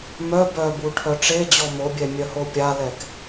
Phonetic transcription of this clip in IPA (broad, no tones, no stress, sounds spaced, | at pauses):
m œ b œ b u ʈʰ œ ʈ͡ʂ e d͡ʑ ɔ m o bʲ ɛ mʲ œ h o pʲ a l ɛ k